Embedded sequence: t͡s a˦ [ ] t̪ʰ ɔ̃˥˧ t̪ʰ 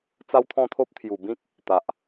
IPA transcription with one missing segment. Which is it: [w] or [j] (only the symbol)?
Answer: w